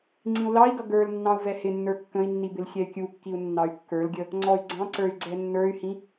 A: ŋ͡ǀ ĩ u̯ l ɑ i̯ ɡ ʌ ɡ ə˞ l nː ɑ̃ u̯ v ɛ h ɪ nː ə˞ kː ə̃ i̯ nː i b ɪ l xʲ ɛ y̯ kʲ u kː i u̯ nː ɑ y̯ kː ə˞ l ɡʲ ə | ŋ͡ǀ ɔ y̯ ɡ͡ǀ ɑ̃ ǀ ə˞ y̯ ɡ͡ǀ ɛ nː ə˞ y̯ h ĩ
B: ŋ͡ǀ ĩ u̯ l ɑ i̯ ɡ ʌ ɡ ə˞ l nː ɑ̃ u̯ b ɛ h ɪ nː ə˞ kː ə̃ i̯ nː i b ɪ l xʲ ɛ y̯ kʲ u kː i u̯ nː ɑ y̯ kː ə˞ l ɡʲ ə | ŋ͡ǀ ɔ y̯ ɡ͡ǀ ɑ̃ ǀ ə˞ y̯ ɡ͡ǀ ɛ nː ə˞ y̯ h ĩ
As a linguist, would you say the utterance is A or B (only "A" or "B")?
A